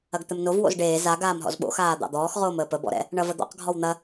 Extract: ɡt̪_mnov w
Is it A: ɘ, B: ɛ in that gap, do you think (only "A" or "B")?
A